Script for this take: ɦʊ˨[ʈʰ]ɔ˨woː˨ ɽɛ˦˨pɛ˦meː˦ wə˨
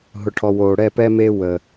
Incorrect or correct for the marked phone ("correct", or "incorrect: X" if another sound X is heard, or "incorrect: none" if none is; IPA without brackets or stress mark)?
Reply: correct